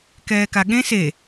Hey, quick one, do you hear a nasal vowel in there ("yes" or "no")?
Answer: yes